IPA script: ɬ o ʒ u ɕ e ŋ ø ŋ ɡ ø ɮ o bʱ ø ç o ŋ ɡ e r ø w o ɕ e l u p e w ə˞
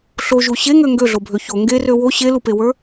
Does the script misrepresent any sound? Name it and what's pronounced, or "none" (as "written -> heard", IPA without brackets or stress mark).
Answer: none